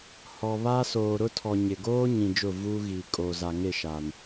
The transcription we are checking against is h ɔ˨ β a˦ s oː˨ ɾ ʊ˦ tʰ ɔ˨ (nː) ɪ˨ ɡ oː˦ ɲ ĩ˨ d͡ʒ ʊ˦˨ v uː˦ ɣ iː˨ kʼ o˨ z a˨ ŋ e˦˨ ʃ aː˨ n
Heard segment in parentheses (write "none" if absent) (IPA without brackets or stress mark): ɲ